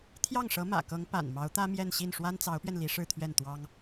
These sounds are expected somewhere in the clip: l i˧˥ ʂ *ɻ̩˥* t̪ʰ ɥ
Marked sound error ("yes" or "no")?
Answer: yes